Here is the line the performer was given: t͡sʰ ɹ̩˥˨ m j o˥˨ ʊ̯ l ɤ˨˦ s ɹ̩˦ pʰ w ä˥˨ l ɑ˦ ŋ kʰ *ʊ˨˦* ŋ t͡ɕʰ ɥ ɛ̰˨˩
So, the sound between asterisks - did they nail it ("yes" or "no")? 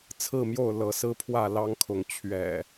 yes